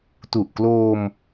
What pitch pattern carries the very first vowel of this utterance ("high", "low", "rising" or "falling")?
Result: low